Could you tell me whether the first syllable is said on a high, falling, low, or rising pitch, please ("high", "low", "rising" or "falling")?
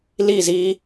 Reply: falling